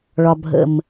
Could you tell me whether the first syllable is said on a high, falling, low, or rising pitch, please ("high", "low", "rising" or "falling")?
low